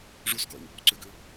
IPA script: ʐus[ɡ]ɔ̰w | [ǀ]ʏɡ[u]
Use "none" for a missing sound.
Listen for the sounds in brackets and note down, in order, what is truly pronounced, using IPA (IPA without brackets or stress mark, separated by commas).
ɡ, ǀ, ʏ